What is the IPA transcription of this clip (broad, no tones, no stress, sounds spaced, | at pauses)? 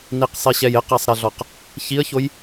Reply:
n i q sˤ i ɕ ɛ j ɪ q ɛ sˤ ɾ ɛ ɮ ɔ q | ç i ə̯ ç o j